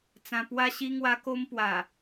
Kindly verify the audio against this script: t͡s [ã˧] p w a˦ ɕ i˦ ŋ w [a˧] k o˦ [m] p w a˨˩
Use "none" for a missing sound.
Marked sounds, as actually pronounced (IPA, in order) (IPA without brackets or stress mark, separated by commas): ã˧, a˦, m